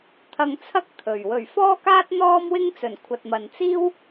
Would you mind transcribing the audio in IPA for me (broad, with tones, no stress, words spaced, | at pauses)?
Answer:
t̪ʰɐ˧ŋt͡sʰɐ˥k̚ t̪ʰɵ˨ɥ wɵ˨˩ɥfɔː˥kaː˥t̚ n̪ɔː˥mwɪ˥ŋt͡sɵ˨˩n kʷʰɐ˨t̚mɐ˨n t͡siː˥w